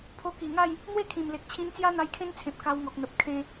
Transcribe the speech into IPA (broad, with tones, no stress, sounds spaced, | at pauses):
pʰ o˧ k i˨˩ ŋ a˥˧ j | n̪ w e˥˧ kʰ ĩ˨˩ m l e˨ k̚ t͡ɕʰ ĩ˧ n t͡s j a˦ n̪ a˧ j kʰ ẽ˦ n t͡sʰ ẽ˨ p̚ k a˧ w ŋ ɔ˨ k̚ n̪ ə˨ p̚ kʰ ẽ˧